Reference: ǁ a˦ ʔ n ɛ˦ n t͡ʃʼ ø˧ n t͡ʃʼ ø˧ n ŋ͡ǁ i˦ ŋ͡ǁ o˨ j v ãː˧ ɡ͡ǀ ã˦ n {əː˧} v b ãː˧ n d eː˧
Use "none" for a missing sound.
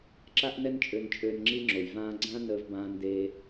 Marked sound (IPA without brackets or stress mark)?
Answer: əː˧